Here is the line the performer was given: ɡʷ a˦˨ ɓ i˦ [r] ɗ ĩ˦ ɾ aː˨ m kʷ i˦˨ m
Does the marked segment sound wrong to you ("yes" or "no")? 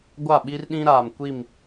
no